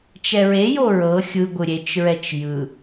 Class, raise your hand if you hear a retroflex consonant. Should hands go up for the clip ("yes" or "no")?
no